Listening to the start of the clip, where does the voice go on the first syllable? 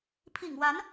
low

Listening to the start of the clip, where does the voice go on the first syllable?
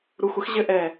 low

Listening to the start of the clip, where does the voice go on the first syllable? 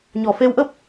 low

